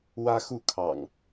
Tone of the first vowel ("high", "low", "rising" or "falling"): high